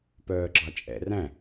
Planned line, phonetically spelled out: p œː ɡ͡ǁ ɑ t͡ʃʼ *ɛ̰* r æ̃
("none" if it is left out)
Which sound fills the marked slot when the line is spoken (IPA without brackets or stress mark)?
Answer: ɛ̰